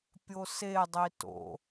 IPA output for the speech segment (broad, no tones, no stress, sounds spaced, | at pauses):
pʲ o s e dˤ i t o̰